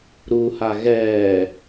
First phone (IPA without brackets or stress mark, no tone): ɾ